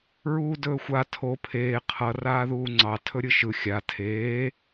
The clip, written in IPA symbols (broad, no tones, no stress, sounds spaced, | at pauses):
ɹ uː d ɵː xʷ a tʰ o pʰ eː qʰ ʌ r aː ð uː ŋ͡ǀ ɑ tʰ ɵ ɾʲ ɯ ʃ ɯ xʲ a tʰ eː